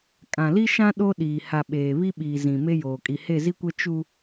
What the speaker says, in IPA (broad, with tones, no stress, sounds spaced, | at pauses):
kʼ ã˨ l i˦ ʃ ã˦ ɗ o˦ ɗ iː˨ h a˨ ɓ eː˨ β i˦ ɓ iː˨ z ĩ˨ m e˦ j oː˨ kʼ i˨ h e˦˨ z i˦ kʷ ɛ˦ t͡ʃ u˦